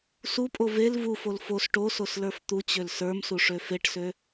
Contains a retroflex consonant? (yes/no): yes